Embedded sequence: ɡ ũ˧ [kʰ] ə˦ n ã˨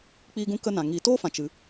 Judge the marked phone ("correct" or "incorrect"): incorrect